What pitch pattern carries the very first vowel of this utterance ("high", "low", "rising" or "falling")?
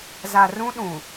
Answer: low